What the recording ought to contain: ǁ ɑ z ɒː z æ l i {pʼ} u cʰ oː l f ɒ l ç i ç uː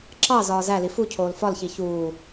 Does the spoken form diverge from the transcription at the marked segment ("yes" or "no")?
yes